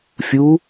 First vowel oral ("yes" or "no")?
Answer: yes